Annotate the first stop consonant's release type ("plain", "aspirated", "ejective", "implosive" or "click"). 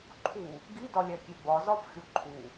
click